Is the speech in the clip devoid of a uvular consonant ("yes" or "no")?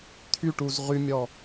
no